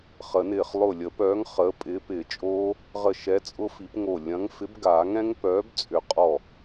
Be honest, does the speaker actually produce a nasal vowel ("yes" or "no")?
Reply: yes